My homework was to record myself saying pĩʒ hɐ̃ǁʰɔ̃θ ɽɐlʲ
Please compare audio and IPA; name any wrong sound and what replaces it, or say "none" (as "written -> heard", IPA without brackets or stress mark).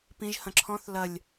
ɽ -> l